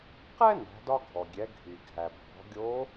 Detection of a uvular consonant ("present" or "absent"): present